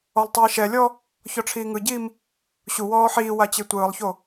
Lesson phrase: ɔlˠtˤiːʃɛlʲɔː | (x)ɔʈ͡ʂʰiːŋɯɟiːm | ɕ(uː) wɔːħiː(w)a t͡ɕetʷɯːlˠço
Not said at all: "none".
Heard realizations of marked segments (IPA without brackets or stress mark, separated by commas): ç, u, w